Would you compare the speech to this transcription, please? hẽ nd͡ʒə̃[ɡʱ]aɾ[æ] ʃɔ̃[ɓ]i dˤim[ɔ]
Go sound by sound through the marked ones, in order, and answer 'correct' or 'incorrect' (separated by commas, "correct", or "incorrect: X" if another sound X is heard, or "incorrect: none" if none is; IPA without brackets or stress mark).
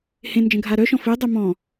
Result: correct, incorrect: œ, incorrect: f, incorrect: ɔ̃